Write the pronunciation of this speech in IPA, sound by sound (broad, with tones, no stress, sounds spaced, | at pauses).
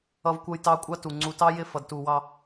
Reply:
ʌ˦ v kʷ ʌ˦ j t ɑ˦ kʷʼ ɑ˦ t u˨ ŋ͡ǀ u˨ t ɑ˦ j ɪ˦˨ f ʌ˨ d t u˨ w ɑ˦